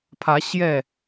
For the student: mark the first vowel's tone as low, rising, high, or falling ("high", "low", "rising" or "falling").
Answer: rising